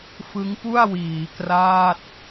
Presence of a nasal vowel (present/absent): absent